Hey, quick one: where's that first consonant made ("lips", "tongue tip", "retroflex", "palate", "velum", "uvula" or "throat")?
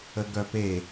velum